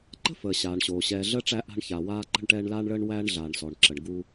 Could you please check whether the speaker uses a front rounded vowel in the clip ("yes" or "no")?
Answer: no